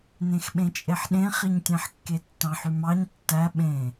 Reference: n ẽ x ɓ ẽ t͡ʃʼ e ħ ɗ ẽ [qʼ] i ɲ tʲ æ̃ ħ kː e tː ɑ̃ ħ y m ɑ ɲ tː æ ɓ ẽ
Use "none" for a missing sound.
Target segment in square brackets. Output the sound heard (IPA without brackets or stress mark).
χ